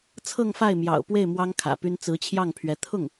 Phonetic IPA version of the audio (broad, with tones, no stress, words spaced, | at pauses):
t͡sʰɤ˥˧ŋfa˥˩ɪ̯mjɑ̰˨˩ʊ̯pwe˥˩ɪ̯ mwɑ˥ŋkʰä̰˨˩py˥n t͡sɹ̩˧˥t͡ɕʰjɑ˥˩ŋpʰɥɛ˧˥ t̪ʰʊ˥˩ŋ